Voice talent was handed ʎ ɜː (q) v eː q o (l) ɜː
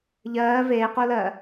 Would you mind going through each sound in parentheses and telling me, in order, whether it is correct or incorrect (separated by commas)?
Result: incorrect, correct